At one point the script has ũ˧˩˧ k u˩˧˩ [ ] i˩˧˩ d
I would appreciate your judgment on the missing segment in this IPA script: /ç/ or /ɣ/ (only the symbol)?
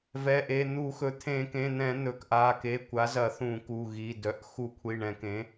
ɣ